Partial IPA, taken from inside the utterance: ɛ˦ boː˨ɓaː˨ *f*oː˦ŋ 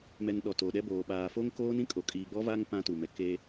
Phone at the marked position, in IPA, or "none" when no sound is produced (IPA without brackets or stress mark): f